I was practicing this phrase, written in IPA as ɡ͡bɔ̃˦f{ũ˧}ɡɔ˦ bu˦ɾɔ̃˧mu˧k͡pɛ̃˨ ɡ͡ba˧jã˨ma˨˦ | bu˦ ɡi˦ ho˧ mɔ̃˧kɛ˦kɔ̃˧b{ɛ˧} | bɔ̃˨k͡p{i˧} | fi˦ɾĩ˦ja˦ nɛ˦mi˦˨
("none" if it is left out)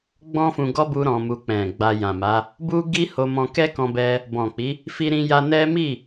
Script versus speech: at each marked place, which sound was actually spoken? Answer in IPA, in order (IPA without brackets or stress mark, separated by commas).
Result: ũ˧, ɛ˧, i˨˦